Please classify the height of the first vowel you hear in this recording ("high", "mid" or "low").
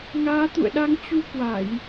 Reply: low